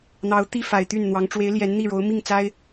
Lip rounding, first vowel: unrounded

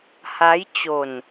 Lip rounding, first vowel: unrounded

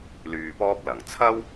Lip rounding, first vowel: rounded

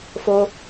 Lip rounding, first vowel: rounded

